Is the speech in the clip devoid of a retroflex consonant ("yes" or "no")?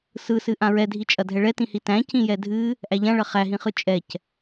no